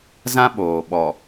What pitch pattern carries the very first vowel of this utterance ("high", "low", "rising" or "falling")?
high